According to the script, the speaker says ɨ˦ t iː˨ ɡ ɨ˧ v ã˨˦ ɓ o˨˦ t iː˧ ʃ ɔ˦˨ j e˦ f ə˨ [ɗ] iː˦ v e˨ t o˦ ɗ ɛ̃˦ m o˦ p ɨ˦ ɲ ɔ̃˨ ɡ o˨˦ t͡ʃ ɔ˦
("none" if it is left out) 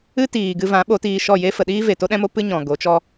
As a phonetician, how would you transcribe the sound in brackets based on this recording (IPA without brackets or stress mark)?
ɗ